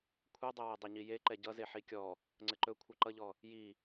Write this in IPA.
kʷʰ ɛ dˤ ɘ w ɛ dˤ ɘ ɲ i j e ǃ ɛ ɟ ʌ z e ħ i kʲ ɔ | ŋ͡ǀ ɘ ǃ ɵ kʷʰ ʌ ǃ ʌ ʎ ɔ | j i

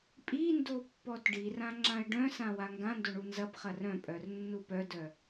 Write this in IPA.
pʼ i n d o pː ɔ t ɖ i r ã ŋ͡ǁ ã ɪ̯ ɖ œ̃ s ã w a ŋ ɡ ã n d o ɳ u n z ɐ p χ ɐ r œ̃ pʼ œ r nː u p œ d œ

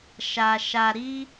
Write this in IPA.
ʃ a˧ ʃ a˧ ɾ i˦

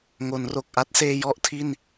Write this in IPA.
ŋ o˩˦ n r o˨˩ k̚ ʔ a˦˥ t̚ s eː˧ j ɔ˦˥ ʔ tʰ i˥˩ n

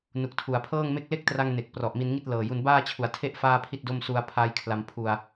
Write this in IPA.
n u˨˩ k̚ tʰ u˩˦ a̯ pʰ ɤː˥˩ ŋ m e˥˩ k̚ l e˥˩ k̚ t r a˧ ŋ n e˨˩ k̚ p r ɔ˨˩ ʔ m i˧ n ŋ i˥˩ t̚ l ɤː˨˩ j u˧ n b aː˥˩ t͡ɕʰ u˨˩ a̯ tʰ e˥˩ ʔ f aː˥˩ pʰ i˥˩ t̚ d o˥˩ m s u˧ a̯ pʰ aː˦˥ j kʰ l a˧ m pʰ u˧ a̯

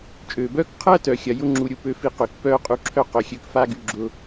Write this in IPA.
t͡ʃʼ øː˩ b œː˥ k qʰ ɐː˥ t œ˩ xʲ ɐ˩ j ʊ˥ ŋ͡ǁ u˩ ɾʲ u˧ p ø˧ f i˧ q ø˩ k p œː˥ qʼ u˧ ǁʰ œ˥ q œ˩ xʲ ø˧ k f a˥ ɡ y˧ ɡ͡ǁ ʊ˧

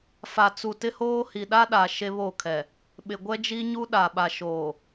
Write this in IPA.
f a˨ t͡s u˨ t ɪ˦ h oː˦ h i˨ ɗ a˦ ɗ a˨ ʃ e˦ β o˦˨ kʰ ɛ˨ | ɓ ɪ˨ ɡʷ ɛ˦ d͡ʒ i˦ ɲ u˦ ɗ a˨ ɓ a˨ ʃ oː˨

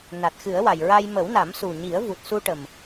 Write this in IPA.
n a˨˩ t̚ x ɨ˨˩˦ ə̯ w a˨˩ j ɹ a˧ j m ə˨˩˦ w n a˨˩˦ m s u˨˩ ɲ i˨˩˦ ə̯ v u˨˩ t̚ s u˧ ʈ ə˨˩ m

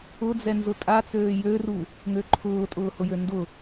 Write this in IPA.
ʊ d͡z ɛ n z ʊ tʼ a t͡s øː j ø r u | ŋ ø ǃʰ ʊː tʼ ʊː h ʊ j ø n d ʊ

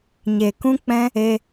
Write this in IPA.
ɲ e˨ k ũ˦ k͡p ɛ̃˦ | e˧

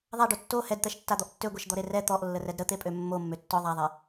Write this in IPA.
ðˤ a ɖ o tː o h ɛ d t̪ ɛ ʃ tː a d̪ ɔ ʔ tː ø ɡʷ ɛ ʃ d̪ ɔ ɾ e r ɛ t̪ ɔ ʔ lː ə r ɛ d ɾ ə t̪ e pʼ ø mː o mː ø tː ɔ ðˤ a ðˤ ɛ

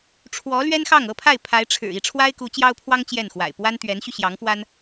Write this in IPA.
ʈ͡ʂʰ w ɔ˧˥ l ɥ ɛ˥ n x ɑ˥˩ ŋ ɤ˥ pʰ a˥˩ ɪ̯ pʰ a˧˥ ɪ̯ ʈ͡ʂʰ ɻ̩˨˩ i˥˩ ʈ͡ʂʰ w a˥ ɪ̯ k u˧˥ t͡ɕ j ɑ˥ ʊ̯ pʰ w ɑ˥ ŋ t͡ɕ j ɛ˥˩ n x w a̰˨˩ ɪ̯ p w a˥ n t̪ ɥ ɛ˧˥ n ɕ y˧ ɕ j ɑ˧˥ ŋ f w a˥ n

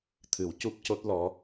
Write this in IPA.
t̪ʰ ɨ˨˩˦ w c u˦˥ p̚ c o˦˥ t̚ l ɔ˧˥

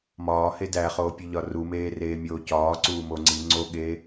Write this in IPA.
m ɒː h e d æ χ oː pʲ u ʎ ɒ r u m eː r eː mʲ oː c ɒː ǀ uː m o ŋ͡ǀ i ŋ͡ǀ o ɠ eː

